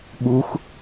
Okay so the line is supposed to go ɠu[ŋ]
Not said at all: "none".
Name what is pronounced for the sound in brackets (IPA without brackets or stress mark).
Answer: x